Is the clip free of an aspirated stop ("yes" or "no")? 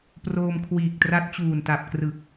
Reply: no